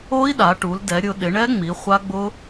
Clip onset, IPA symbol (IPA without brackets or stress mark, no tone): o